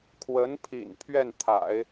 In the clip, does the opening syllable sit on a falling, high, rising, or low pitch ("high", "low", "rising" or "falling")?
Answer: rising